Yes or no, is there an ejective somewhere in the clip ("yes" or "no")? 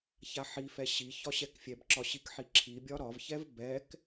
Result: no